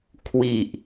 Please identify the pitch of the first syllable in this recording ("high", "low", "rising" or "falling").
low